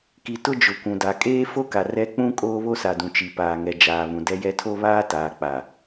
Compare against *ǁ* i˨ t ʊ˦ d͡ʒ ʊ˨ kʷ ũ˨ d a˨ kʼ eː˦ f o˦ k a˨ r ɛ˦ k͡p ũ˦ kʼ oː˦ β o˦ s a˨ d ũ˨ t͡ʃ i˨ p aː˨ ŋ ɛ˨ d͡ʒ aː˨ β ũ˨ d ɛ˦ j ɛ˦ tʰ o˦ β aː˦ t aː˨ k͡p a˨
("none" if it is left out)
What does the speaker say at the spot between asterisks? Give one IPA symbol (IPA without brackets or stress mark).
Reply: k